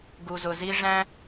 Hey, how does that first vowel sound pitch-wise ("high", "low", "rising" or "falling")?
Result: low